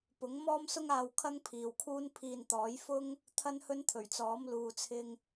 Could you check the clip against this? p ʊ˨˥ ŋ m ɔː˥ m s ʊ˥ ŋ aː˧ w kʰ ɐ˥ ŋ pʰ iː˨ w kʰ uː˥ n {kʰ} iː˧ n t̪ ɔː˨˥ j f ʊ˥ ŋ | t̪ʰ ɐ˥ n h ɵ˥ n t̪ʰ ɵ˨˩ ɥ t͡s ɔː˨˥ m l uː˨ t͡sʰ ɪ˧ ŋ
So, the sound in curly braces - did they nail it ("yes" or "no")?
no